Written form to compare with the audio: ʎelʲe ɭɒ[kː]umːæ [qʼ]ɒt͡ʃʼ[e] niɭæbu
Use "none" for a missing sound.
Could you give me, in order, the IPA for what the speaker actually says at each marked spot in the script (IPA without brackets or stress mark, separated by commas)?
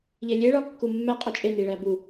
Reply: kː, qʼ, e